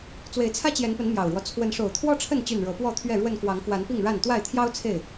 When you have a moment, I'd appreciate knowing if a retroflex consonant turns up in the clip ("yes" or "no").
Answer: yes